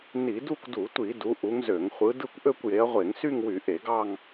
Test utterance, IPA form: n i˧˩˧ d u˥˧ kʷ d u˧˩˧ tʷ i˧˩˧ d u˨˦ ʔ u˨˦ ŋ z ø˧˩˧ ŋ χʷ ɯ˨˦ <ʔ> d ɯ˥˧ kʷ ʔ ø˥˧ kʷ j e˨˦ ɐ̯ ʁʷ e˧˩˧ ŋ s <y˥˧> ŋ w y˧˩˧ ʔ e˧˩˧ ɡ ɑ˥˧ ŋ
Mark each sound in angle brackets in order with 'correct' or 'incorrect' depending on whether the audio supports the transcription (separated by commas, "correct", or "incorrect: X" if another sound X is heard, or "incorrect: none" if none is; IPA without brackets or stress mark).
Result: incorrect: none, correct